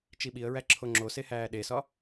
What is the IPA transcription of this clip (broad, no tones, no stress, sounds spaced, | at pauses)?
t͡ʃ i ɓ i ə̯ ɹ æ ǁʰ o ŋ͡ǁ o s e h æː ɗ e s ɒ